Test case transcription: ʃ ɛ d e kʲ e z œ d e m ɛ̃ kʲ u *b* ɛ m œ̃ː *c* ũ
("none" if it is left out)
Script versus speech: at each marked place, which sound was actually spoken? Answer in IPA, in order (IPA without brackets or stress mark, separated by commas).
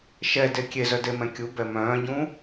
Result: b, ɟ